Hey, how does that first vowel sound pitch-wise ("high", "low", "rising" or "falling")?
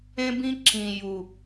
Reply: high